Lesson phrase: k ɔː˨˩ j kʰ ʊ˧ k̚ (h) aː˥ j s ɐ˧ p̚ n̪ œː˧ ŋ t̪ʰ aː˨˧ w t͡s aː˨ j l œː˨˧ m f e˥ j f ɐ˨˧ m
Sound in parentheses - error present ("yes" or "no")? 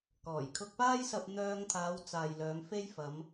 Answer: yes